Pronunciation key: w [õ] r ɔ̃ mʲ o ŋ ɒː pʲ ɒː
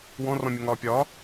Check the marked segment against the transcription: incorrect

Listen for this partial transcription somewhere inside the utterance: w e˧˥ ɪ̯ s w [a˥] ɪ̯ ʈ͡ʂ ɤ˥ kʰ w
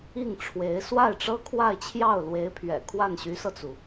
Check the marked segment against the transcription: incorrect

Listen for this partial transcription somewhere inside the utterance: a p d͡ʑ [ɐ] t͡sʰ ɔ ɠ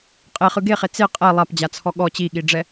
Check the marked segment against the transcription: incorrect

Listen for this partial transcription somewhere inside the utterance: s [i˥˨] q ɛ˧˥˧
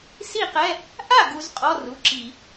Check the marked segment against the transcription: correct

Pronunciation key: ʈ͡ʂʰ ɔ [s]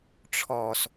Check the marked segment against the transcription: correct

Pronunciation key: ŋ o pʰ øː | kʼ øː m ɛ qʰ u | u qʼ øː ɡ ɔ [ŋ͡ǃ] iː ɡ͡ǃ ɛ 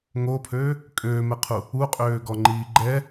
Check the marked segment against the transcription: correct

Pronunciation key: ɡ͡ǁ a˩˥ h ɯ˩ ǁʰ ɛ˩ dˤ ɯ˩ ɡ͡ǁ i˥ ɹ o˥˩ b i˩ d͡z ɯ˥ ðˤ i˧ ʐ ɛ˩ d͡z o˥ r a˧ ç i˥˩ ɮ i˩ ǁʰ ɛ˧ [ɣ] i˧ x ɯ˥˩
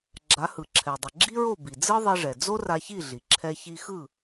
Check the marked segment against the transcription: incorrect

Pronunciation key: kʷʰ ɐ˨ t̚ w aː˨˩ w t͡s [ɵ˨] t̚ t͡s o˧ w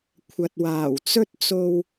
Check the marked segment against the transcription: incorrect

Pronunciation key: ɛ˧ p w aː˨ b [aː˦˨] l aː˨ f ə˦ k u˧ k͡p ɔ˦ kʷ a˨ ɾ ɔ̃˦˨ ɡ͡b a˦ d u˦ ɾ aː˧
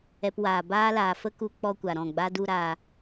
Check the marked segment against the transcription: incorrect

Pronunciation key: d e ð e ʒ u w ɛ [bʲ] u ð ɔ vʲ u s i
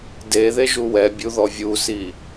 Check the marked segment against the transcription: correct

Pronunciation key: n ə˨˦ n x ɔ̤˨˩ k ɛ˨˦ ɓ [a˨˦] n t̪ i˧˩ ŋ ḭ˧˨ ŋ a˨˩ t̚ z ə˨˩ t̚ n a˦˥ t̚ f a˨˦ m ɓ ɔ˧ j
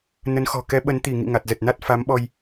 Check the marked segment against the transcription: incorrect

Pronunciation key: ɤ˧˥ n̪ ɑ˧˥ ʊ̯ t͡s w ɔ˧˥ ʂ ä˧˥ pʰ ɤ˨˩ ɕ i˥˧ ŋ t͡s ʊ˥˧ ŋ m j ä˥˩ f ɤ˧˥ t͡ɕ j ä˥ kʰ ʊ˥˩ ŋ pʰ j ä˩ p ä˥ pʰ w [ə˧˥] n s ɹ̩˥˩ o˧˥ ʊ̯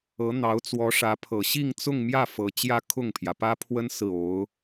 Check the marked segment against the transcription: incorrect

